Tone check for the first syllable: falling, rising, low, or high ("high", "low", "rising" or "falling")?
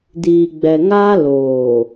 low